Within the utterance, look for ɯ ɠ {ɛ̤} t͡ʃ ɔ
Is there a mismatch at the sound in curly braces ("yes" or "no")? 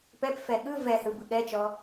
yes